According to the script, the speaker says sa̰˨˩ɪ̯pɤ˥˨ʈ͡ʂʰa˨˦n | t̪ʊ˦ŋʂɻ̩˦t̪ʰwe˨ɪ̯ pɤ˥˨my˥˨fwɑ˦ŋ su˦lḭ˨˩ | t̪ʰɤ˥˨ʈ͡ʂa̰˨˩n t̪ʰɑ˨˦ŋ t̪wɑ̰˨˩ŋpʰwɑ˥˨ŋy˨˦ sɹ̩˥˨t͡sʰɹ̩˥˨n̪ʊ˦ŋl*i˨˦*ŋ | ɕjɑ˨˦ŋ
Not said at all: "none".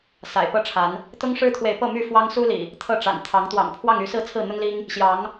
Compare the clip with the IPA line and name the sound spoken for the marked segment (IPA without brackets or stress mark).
i˦